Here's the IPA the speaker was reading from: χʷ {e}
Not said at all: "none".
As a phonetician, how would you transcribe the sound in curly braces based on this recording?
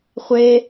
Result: e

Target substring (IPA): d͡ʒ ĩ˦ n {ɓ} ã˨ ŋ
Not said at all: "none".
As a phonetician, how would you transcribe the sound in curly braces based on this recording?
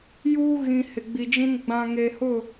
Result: ɡ͡b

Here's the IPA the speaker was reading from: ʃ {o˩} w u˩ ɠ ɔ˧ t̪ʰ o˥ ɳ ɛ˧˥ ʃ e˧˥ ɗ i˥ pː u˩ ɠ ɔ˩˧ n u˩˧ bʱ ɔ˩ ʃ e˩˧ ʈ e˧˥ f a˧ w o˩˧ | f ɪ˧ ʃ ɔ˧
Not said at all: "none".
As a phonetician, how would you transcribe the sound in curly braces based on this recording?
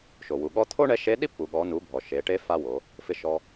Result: o˩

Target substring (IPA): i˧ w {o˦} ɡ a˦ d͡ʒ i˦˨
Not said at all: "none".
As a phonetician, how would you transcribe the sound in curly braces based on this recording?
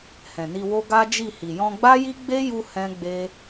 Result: o˦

